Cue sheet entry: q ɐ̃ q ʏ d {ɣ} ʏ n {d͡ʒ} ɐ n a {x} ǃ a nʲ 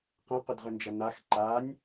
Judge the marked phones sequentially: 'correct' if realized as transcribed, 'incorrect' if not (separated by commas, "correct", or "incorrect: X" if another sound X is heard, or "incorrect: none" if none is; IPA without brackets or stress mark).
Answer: incorrect: ʁ, correct, correct